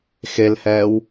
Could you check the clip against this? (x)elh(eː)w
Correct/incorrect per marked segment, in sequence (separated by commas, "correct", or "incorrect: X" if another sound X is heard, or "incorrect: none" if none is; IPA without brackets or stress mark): correct, incorrect: ɛː